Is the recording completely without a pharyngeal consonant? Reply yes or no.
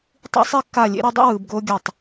yes